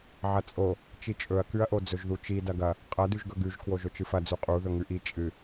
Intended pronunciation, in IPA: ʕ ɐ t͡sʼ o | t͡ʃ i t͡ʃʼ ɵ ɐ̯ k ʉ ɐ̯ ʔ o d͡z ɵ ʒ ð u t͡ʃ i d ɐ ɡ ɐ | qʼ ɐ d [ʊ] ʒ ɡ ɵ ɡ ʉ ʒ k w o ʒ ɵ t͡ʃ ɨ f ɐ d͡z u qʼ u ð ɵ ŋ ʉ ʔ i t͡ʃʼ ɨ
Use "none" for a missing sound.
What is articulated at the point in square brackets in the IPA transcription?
ʉ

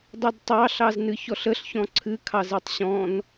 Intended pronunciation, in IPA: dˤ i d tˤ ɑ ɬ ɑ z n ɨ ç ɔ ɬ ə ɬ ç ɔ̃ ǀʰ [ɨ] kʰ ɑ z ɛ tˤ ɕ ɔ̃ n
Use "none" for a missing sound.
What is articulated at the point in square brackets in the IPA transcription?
ɨ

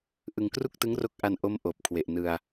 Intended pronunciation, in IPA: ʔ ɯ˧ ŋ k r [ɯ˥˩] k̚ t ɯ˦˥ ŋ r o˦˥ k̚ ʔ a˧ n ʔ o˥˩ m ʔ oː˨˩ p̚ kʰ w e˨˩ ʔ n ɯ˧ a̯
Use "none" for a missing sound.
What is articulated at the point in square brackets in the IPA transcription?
u˥˩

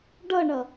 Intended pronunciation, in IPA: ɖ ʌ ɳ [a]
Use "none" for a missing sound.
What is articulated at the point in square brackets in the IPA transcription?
ʌ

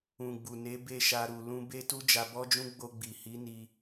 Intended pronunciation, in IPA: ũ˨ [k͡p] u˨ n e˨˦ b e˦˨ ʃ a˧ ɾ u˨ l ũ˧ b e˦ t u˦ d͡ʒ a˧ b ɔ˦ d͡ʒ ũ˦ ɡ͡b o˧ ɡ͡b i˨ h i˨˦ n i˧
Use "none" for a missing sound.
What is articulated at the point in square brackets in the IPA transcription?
ɡ͡b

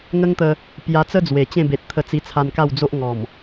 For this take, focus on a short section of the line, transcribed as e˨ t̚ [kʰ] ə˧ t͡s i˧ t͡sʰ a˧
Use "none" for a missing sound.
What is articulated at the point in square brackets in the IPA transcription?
t̪ʰ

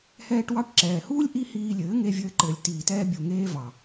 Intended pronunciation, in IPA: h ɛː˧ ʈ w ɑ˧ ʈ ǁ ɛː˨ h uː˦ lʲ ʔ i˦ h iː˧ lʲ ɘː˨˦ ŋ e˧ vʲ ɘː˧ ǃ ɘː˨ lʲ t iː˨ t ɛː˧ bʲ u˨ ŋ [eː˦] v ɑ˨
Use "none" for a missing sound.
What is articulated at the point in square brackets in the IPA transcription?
eː˦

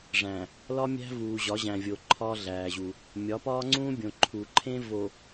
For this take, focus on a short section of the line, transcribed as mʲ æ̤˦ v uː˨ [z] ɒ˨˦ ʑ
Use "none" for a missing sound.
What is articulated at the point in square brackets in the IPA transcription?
ʑ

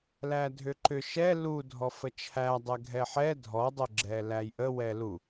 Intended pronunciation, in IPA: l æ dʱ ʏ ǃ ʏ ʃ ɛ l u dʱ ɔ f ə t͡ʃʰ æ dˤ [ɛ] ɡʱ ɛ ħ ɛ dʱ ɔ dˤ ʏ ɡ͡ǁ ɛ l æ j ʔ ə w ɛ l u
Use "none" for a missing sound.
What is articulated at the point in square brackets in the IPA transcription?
ɛ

